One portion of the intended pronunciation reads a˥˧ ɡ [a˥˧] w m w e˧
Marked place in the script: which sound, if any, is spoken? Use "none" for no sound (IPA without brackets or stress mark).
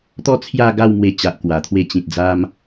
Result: a˥˧